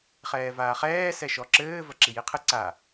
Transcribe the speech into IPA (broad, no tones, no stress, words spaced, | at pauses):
χɛːvaːχɛː sɛʃɔǁɘː vɐǁijiqʰɨ ǀa